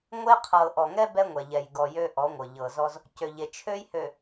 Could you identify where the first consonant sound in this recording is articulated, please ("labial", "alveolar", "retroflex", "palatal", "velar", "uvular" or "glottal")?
velar